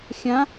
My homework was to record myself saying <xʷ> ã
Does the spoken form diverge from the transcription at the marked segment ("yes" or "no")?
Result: yes